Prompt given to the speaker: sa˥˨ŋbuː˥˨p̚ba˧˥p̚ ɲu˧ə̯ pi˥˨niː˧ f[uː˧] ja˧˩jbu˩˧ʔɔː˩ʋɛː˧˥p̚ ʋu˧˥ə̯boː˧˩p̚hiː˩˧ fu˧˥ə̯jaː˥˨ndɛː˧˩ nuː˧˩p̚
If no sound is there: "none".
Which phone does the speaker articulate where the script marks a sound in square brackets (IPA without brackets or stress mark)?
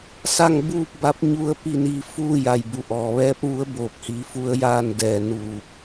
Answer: uː˥˨